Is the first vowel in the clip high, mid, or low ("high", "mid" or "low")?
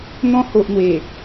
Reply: mid